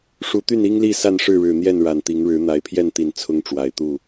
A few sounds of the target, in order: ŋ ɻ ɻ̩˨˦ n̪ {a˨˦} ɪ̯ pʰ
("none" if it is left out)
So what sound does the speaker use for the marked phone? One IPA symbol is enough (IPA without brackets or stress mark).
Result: a˨˦